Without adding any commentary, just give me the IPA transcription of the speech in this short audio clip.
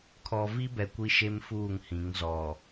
kʰ ɔ˨ v i˦ b ɛ˨ kʷ i˦ ʃ e˦ m f uː˦˨ ŋ h ĩ˨˦ ŋ z ɔ˨

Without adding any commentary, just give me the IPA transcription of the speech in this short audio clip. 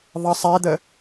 ðˤ ʌ sˤ ɛ d̪ ə

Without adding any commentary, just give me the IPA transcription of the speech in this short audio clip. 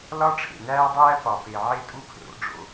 l ɒ˦ ʈ͡ʂʰ ḛ˨ n æː˦ dˤ æː˦ p ɒ˨ p e˨ ʕ e˦ tʼ u˦ pʰ r o̰˨˦ ɖ͡ʐ o̰˦

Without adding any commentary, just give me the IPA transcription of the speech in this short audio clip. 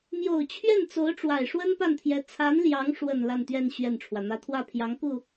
m j o˨˩ ʊ̯ t͡ɕʰ ɥ ɛ˥˩ n t͡s o˧˥ ʊ̯ ʈ͡ʂ w a˨˩ ɪ̯ ʂ w ə˥ n p a˥˩ n t̪ʰ j ɛ˧˥ t͡sʰ a˧˥ n l j ɑ˧˥ ŋ ʂ w ə˨˩ n l a˥˧ n t̪ ɥ ɛ˥˧ n ɕ ɥ ɛ˥˩ n ʈ͡ʂʰ w ä˩ n̪ ä˥ t̪ʰ w ä˥˩ pʰ j ɑ˧˥ ŋ k u˥˩

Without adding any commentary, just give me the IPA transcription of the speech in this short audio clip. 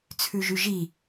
t͡sʰ ʉ ʒ y ʒ i

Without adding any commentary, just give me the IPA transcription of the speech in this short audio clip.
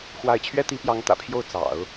x w a˥˩ ɪ̯ t͡ɕʰ ɥ ɛ˥ t̪ i˧˥ p j ɑ˧˥ ŋ t̪ ä̰˨˩ pʰ j o˥˩ ʊ̯ t͡s ɑ̰˨˩˦ ʊ̯

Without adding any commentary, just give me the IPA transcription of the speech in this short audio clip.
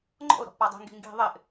ŋ͡ǃ ɔ̰ ʊ̯ ɾ ɔ̤ ʔ p a dˤ i̤ ŋ ɡ i̤ ŋ ɡ i̤ ðˤ ɪ ʔ

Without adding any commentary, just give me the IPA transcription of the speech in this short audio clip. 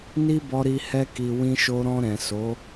n i˦ b ɔ˧ ɾ i˧ h ɛ˦ k i˧ w ĩ˧ ʃ o˧ ɾ ɔ̃˧ ɾ ɛ̃˨ s o˨˦

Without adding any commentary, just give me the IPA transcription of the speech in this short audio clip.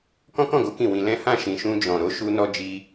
k ɔ̃˦ k ɔ̃˦˨ ɡ o˨˦ k ĩ˦˨ w ĩ˧ l ɛ̃˦ h ã˦˨ ʃ ĩ˨ ʃ ũ˧ d͡ʒ ɔ̃˨ ɾ o˨˦ ʃ u˧ n ɔ˧ d͡ʒ i˧

